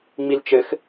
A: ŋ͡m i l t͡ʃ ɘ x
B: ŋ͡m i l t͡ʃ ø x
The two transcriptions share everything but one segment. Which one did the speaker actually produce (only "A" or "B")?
A